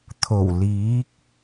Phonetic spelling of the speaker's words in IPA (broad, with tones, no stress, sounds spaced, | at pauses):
t̪ʰ o˨˩ w l iː˨˥ k̚